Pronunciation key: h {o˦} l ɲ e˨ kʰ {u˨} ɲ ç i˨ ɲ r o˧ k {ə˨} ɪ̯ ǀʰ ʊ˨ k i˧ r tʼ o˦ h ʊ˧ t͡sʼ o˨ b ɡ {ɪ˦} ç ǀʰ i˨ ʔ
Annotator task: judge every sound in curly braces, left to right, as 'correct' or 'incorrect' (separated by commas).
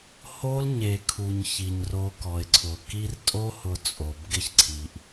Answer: correct, correct, incorrect, correct